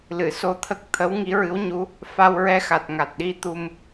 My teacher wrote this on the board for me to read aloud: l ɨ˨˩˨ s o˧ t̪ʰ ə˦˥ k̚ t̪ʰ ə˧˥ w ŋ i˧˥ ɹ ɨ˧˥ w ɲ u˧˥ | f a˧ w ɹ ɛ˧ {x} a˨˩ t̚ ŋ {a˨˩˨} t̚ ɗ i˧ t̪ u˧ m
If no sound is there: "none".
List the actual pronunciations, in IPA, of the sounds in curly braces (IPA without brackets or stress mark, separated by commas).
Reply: x, a˨˩